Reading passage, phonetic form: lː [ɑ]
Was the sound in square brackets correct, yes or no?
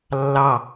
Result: yes